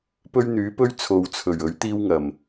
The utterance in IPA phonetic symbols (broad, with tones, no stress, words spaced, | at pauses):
pɵ˥ɥn̪yː˨˥pɵ˥ɥ t͡sʰo˨wt͡sʰɵ˨˩ɥ ɵ˨˥ɥt̪iː˥wŋɐ˨˩m